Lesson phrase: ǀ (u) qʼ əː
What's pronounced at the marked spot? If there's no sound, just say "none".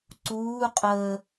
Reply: uː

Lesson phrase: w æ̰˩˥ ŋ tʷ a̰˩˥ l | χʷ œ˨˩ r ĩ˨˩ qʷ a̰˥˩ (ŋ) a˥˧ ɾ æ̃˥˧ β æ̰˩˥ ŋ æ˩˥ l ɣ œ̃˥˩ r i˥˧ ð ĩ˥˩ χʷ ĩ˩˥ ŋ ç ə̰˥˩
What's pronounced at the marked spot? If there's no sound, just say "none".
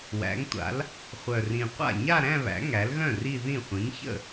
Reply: ɲ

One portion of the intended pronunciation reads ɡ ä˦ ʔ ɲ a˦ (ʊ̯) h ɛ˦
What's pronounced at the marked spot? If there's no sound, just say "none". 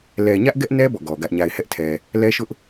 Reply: ɪ̯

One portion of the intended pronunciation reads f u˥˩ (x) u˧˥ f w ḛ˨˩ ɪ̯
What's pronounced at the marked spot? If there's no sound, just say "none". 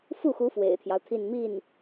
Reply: x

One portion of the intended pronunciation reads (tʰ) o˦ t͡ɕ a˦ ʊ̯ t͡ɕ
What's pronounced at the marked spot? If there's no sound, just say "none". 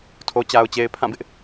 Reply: tʰ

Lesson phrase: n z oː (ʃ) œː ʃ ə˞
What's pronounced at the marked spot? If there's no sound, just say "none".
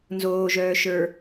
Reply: ʒ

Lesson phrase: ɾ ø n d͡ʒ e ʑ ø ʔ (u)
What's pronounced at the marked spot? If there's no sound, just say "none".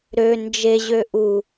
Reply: u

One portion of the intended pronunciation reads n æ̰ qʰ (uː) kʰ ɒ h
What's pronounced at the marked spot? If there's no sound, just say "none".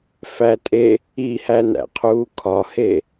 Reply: uː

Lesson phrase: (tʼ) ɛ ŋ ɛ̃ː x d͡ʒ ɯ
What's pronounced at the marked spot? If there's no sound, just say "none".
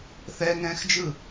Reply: θ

